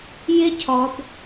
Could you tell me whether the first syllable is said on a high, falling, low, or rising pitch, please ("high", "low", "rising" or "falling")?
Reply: high